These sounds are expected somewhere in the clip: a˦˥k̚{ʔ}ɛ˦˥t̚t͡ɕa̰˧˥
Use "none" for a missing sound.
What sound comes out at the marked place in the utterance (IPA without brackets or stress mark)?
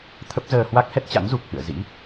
h